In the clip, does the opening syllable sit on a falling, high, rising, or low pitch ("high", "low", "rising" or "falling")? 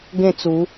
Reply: falling